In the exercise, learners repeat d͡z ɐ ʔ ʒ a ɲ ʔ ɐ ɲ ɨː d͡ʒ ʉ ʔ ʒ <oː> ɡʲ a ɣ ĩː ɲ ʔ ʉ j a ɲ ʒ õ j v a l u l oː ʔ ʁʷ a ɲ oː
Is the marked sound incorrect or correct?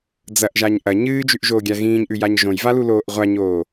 correct